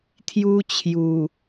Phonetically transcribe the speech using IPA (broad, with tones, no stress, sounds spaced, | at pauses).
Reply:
t̪ʰ j u˦ t͡ɕʰ j u˨˩